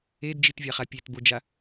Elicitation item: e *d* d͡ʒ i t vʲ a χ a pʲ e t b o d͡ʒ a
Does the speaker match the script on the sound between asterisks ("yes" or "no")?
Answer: yes